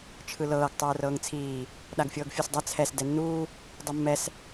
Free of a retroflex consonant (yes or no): yes